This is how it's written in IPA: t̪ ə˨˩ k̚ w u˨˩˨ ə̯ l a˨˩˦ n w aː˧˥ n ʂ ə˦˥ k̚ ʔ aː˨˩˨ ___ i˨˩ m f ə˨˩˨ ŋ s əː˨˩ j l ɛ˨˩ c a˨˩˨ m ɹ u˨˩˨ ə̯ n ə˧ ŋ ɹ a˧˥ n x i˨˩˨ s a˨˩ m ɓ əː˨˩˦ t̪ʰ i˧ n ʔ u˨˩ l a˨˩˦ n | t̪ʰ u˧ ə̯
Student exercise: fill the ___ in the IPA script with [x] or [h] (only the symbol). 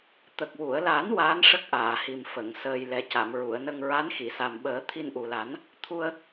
h